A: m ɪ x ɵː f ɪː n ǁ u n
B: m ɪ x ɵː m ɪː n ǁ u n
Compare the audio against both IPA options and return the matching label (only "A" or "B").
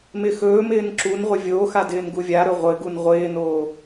B